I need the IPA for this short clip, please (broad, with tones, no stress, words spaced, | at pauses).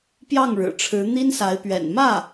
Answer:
pjɑ˥˩ŋɻɻ̩˨˩ ʈ͡ʂʰɻ̩˧˥ n̪i˥nsa˧˥ɪ̯pɥɛ̰˨˩n mä˥˩